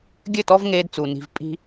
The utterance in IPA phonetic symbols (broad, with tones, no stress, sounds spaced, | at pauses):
ɡʲ ɘ˦˨ t ɔ˦ v ŋ eː˦ d t͡s u˨ n i̤˨ v pʼ i̤˦